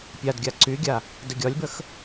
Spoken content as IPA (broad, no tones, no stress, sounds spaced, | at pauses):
pʲ a d ɡʲ a ǀ y ɡʲ a | d ə ɡʲ ɒ lʲ b ə x